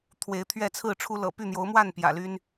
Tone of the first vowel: rising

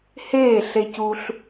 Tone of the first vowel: falling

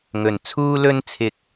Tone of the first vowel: low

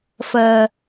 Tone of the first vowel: low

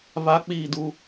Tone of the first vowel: high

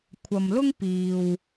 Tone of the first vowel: low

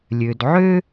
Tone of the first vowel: low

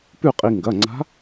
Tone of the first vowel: falling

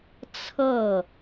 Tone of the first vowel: falling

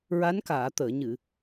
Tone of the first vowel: rising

